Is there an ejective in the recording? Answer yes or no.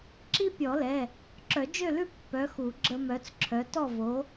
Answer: no